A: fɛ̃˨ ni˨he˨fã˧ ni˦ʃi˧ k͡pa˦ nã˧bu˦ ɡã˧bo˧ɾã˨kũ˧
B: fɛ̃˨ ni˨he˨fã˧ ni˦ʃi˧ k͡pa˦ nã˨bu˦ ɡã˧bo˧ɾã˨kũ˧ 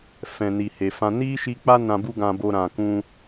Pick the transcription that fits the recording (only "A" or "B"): A